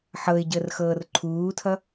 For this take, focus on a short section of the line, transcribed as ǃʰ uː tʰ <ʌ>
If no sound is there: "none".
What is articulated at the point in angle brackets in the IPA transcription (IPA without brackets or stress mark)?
ʌ